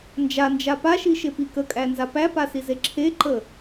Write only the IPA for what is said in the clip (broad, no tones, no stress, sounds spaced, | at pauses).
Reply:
n d͡ʒ a n d͡ʒ a p a ʃ i ʃ e p i k ə kʼ æ n z a p æ p a s i z e ǁʰ e ǃ ə